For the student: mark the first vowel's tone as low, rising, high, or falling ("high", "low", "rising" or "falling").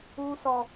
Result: high